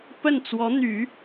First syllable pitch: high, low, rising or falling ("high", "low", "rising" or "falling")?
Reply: falling